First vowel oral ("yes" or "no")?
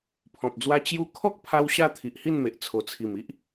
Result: no